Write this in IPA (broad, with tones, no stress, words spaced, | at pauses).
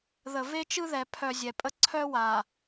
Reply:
ðə˨ve˦t͡ʃɯ˦ðɛ˨ pʰœ˨zʲɛ˨pʼə˦ ǀʰœ˦wa˨